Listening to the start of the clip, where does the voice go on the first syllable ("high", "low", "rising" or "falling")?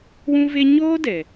high